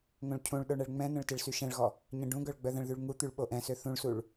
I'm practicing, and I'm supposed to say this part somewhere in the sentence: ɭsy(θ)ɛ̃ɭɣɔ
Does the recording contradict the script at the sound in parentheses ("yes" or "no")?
yes